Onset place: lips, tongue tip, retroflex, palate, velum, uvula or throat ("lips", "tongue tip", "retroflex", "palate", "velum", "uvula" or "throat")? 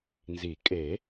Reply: tongue tip